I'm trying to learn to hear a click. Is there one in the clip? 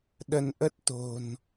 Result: no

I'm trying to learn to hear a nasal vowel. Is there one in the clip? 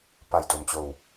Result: no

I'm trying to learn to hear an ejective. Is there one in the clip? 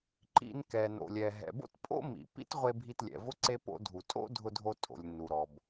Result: yes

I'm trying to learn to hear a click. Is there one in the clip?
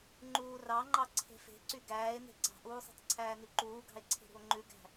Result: yes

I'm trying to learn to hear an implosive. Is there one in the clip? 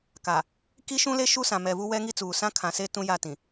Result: no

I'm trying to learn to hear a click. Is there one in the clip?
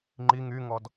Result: yes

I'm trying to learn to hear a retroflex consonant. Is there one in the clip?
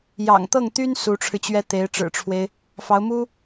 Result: yes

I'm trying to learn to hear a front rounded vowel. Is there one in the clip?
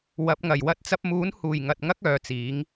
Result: yes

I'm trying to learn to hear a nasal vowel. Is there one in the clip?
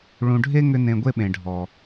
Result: yes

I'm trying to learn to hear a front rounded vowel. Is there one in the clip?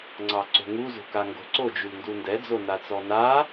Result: yes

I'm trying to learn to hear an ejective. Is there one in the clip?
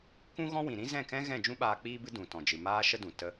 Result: no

